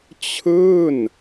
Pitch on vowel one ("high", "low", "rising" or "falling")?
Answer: falling